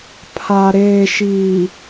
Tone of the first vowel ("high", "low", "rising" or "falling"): low